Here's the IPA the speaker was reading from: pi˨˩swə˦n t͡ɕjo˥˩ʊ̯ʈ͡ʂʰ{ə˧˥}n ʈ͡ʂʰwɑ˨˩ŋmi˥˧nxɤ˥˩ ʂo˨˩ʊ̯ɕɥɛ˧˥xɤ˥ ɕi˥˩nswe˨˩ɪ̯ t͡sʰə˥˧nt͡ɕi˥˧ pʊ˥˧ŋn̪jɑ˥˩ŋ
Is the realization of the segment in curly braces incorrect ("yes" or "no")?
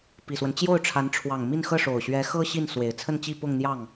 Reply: yes